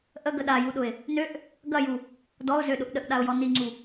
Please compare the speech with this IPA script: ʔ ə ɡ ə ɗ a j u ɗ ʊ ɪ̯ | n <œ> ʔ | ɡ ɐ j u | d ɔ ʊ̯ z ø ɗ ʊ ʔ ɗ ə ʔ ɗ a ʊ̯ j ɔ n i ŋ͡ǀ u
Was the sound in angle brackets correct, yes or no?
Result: no